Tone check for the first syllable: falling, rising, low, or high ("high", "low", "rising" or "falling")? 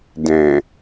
low